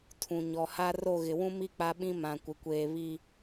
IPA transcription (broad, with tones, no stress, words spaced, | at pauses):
tʰũ˨ɲɔ˨ha˦ ro˦˨ɣɪ˨ wũ˦mi˦ k͡pa˦ɓĩ˦ mã˨ kʷɪ˨kʷeː˦ βi˦